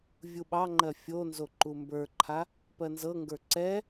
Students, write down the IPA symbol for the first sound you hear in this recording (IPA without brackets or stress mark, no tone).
vʲ